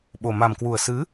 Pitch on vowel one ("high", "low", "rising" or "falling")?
low